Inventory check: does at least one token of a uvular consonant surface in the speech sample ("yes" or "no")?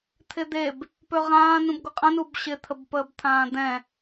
yes